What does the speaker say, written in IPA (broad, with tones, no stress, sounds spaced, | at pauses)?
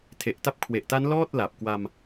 tʰ e˨˩ ʔ t a˦˥ p̚ kʰ w e˨˩ ʔ t a˦˥ n l ɔː˥˩ t̚ l a˨˩ p̚ k w a˧ m